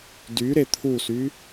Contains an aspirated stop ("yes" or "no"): yes